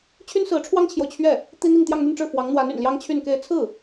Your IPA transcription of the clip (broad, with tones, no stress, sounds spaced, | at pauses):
t͡ɕʰ y˥ n s ɹ̩˧˥ ʈ͡ʂʰ w ɑ˥ ŋ t͡ɕʰ j o˨ ʊ̯ t͡ɕʰ ɥ ɛ˥˩ | t̪ i˥ n̪ i˥˧ ŋ t̪ j ɑ˥˧ ŋ n̪ y˥˧ n ʈ͡ʂ ɻ̩˥˩ f w ɑ˧˥ ŋ n̪ w a˧˥ n y̰˨˩ n l j ɑ˥ ŋ t͡ɕʰ y˥˧ n k e˥˧ ɪ̯ t͡sʰ ɹ̩˥˩